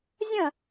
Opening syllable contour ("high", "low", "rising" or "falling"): falling